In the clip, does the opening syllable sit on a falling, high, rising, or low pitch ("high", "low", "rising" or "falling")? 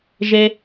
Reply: high